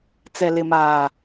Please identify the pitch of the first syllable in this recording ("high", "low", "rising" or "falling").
low